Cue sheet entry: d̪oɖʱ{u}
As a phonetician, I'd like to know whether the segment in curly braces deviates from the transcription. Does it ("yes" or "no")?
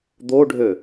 yes